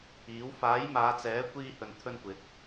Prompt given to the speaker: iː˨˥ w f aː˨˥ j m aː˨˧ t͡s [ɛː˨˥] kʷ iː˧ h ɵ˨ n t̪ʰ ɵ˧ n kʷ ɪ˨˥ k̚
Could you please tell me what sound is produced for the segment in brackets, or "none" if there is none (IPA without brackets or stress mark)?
ɛː˨˥